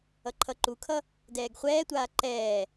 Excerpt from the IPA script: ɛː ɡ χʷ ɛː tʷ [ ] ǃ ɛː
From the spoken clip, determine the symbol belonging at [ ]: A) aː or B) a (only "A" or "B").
A